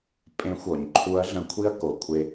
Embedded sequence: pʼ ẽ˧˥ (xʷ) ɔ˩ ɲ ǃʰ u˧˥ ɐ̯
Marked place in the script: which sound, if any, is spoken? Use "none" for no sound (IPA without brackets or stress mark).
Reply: xʷ